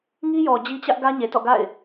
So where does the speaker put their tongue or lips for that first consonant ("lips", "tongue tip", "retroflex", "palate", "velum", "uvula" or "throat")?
velum